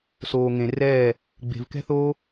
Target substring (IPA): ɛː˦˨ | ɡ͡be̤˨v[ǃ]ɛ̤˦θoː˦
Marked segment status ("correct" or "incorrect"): incorrect